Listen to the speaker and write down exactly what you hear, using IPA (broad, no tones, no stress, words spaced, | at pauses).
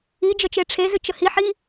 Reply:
i d͡ʒət͡ʃeʈ͡ʂʰezɨ t͡ʃəhiħi